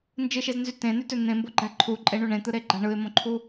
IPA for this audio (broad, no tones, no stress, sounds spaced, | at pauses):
n d͡ʒ ɯ ʃ e z n z y t ẽ n y t ø n̪ ẽ m b o ɡ͡ǃ æ ǃʰ u ǃʼ e ɳ u ɳ ẽ t̪ ɯ ɾ e ɡ͡ǃ æ ɳ ɯ ɪ̯ m õ ǃʰ u